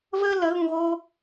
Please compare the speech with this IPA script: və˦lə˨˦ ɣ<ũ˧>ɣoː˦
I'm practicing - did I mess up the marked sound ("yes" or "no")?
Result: no